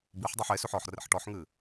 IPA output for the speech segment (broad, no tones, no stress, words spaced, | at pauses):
biħdˤuħ esʉħ ɔħrḛħ ʈɔħŋɨ